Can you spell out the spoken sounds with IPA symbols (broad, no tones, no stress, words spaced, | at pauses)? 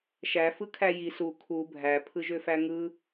ʃæ fɯkʰæji su kʰu bʱæ pʰɯʒøfæŋɯ